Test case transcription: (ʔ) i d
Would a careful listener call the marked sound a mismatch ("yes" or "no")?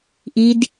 no